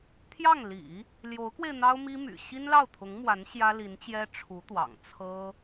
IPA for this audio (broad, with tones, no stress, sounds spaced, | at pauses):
t̪ʰ j ɑ˥˩ ŋ l ḭ˨˩˦ | l j o˧˥ ʊ̯ k w e˧ ɪ̯ n̪ ɑ˥ ʊ̯ m i˥ m y̰˨˩ ɕ i˥ n l ɑ˥˩ ʊ̯ t̪ʰ ʊ˧˥ ŋ m w a˧˥ n ɕ j ä˥ l i˧˥ n t͡ɕ j ɛ˥ ʈ͡ʂʰ u˧˥ t̪ w ɑ̰˨˩ ŋ t͡sʰ ɤ˥